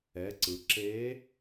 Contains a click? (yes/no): yes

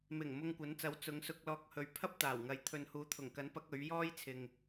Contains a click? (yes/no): no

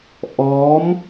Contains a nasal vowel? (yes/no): no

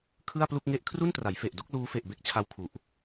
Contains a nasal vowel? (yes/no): no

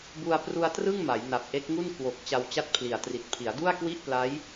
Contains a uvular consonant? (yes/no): no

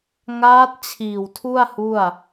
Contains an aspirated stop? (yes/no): yes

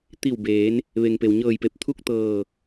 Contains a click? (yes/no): no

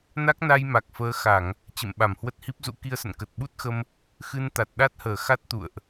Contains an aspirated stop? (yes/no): no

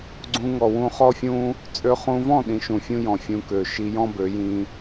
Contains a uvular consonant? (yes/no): yes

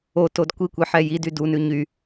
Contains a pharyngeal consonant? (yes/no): yes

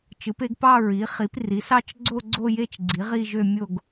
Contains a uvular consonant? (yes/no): yes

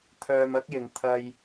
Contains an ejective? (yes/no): no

